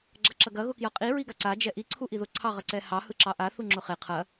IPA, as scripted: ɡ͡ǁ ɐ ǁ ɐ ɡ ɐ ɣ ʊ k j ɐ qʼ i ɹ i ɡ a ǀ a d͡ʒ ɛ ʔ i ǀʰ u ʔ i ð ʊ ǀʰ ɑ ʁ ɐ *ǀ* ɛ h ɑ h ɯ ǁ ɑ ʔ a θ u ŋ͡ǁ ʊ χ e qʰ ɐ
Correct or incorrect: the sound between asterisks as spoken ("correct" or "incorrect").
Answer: correct